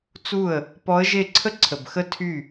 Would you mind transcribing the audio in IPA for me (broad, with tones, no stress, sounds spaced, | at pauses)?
t͡s u˥˩ ə̯ | p ɔ˧˥ ə̯ ʒ e˥˩ ǀʰ ə˥ ǀʰ ə˨˩ b x ə˥ tʰ y˥˩